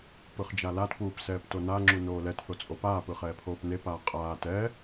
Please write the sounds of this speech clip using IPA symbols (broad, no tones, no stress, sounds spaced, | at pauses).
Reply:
p ɯ χ d͡ʒ a l a t p uː p s ɛː p t o n a ŋ͡ǁ u n oː l ɛ t θ o t͡sʼ o p aː p ɯ χ ɛː pʰ oː p n e p aː qʼ aː t ɛ